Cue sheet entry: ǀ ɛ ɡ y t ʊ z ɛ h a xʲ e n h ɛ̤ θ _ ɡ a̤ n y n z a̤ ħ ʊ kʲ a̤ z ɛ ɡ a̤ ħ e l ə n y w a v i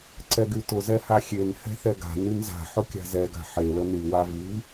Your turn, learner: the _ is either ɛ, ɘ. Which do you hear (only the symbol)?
ɛ